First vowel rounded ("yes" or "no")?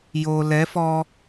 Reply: yes